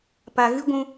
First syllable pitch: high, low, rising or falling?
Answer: low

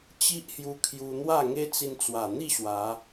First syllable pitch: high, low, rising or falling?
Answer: high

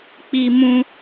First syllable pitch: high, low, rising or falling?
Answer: high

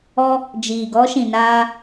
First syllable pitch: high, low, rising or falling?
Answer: high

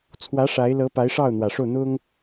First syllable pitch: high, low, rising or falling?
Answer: rising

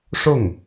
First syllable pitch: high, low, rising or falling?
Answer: falling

